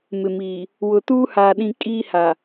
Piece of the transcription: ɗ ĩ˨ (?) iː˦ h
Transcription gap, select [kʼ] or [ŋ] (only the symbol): kʼ